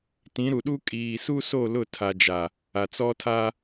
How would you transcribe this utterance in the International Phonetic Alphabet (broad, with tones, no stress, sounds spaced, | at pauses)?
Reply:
t ĩ˨˦ ɾ u˨ ɗ u˦ kʼ iː˨ s u˦ s o˦˨ l ʊ˦˨ tʰ a˨ d͡ʒ a˨ | a˨ t͡s ɔ˦ tʰ a˦